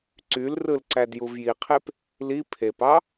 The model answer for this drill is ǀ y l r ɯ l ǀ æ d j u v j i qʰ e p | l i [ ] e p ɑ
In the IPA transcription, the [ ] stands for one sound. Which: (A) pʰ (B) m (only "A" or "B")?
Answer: A